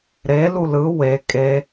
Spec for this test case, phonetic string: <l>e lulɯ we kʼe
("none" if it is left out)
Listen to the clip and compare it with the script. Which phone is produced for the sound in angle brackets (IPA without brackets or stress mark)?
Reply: ɾ